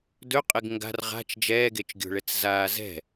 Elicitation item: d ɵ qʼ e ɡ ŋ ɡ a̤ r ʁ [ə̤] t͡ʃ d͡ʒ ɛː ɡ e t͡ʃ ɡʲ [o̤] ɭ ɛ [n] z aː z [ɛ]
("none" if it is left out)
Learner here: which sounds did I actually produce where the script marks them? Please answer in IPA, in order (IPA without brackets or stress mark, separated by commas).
a̤, o̤, t͡s, ɛ̤